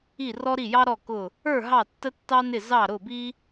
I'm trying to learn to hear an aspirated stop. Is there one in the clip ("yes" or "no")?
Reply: no